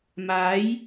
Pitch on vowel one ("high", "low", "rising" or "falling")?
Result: rising